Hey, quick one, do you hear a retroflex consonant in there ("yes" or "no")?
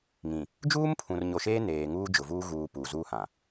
no